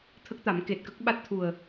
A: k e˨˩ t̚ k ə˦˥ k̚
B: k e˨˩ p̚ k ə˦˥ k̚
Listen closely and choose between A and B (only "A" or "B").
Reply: A